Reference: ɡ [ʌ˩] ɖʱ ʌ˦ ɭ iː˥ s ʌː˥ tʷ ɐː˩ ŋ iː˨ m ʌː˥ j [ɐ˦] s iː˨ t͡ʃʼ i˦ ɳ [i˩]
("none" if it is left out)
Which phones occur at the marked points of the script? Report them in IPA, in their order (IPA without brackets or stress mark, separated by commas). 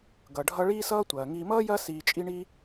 ʌ˩, ɐ˦, i˥